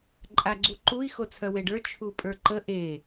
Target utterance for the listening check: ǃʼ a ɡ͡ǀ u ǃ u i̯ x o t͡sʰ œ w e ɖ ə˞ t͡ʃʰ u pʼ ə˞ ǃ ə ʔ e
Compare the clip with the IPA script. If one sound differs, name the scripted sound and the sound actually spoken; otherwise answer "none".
none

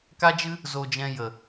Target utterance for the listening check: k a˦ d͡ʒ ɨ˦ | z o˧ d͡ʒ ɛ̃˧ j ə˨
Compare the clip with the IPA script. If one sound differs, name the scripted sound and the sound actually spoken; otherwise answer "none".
none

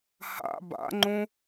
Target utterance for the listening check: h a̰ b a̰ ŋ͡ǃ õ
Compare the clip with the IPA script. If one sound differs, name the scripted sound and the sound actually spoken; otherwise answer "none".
none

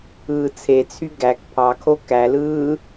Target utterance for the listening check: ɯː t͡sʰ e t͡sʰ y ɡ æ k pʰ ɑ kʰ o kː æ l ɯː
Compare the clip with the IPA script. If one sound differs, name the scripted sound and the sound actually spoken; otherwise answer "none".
kː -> k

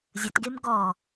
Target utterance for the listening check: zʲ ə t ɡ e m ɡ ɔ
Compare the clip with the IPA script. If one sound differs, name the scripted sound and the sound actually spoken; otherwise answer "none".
none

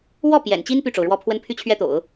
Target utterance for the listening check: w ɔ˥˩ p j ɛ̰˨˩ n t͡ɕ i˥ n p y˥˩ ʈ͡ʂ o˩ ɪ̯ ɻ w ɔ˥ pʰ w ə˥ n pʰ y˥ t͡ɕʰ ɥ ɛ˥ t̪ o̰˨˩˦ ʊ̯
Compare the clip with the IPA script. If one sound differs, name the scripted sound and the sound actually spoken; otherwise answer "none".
ɪ̯ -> ʊ̯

